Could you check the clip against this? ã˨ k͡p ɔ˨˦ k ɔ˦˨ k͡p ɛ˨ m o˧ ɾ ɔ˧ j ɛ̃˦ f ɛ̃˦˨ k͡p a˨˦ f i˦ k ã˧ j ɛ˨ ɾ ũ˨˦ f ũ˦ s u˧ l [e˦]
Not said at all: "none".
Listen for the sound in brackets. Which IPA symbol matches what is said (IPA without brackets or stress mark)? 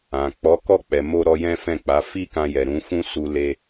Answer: e˧